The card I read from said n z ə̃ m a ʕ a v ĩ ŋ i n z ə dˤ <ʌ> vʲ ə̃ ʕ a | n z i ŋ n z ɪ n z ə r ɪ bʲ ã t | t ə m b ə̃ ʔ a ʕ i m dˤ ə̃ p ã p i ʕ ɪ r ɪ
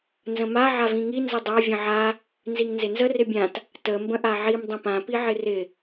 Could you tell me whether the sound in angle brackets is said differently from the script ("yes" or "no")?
yes